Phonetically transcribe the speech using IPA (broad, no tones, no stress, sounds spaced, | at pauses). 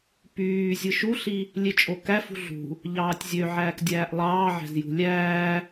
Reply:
p yː zʲ ɯ ʃ u ɬ i | lʲ e t͡ʃʼ o k æ f ṳ ɮ ṳ | ʎ ɑː tʲ zʲ ø ʕ æː k dʲ æː ʔ lˠ ɑː ʕ æ̤ z j ṳ lʲ æː